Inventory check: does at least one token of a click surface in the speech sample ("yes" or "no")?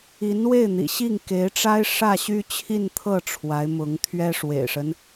no